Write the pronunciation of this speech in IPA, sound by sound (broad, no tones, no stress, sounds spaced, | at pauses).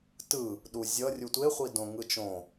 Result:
t ɯ | ɗ u zʲ ʌ rʲ u tʷ e χʷ i d õ ŋ ɯ t͡ʃ õ